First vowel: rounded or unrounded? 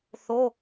rounded